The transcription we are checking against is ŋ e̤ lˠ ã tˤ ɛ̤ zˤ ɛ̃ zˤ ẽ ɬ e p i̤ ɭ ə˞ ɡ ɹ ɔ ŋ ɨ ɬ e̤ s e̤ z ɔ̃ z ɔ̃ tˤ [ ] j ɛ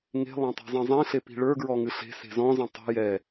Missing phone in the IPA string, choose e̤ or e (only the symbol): e̤